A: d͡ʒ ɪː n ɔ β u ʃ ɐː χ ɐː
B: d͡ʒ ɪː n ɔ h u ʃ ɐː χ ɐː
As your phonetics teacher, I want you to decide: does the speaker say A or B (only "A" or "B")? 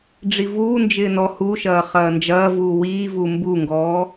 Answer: B